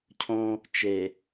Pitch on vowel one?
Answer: high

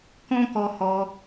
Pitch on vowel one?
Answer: high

